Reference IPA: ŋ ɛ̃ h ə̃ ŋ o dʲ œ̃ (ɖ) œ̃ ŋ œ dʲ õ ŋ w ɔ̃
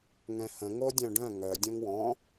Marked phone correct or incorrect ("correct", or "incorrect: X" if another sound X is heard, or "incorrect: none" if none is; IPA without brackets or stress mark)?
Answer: correct